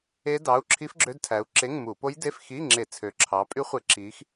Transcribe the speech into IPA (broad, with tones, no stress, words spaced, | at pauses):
e˦˥ dɑ˩˧˩u̯ǁʰi˦˥fɡ͡ǁø˧˥˧dtʰæ˨˦u̯ ǁe˧˥˧ŋmu˧˩˧ po˦˥jde˧˥˧fxi˧˥˧ŋ͡ǁe˧˩˧ t͡sʰø˨˦ǁʰɑ˨˦pʼy˦˥χʷe˧˩˧ ǁi˨˦x